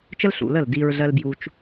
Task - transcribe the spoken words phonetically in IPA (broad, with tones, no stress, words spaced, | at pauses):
t͡ʃə˦lɬṵ˨lə˦˨l di˧ɹɮɜ˦l bju˧t͡ʃ